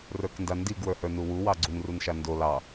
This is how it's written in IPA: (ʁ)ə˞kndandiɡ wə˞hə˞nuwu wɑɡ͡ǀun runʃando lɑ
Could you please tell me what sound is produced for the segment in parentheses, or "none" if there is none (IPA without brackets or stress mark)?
r